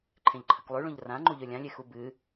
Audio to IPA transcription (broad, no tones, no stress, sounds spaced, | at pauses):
ǃʰ ẽ ʎ ǃʰ ɐ k lˠ ʉ ɭ ũ ʎ r ã ŋ͡ǃ u ʎ ɵ lʲ ã lʲ e x u b ɨ